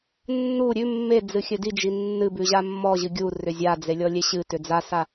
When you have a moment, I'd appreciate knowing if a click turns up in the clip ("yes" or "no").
no